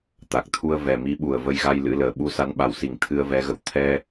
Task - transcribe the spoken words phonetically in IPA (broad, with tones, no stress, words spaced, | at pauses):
t̪a˨˩k̚t̪ʰu˧ə̯ vɛ˨˩mi˨˦ɓu˧˩ə̯ və˧jɣa˧j lɨ̰˧˥ləː˨˩ ɓu˧sa˨˦nɓa˧˩wsi˧˩ŋ t̪ʰɨ˧ə̯vɛ˨˦ɣə̰˧˨w t̪ʰɛ˧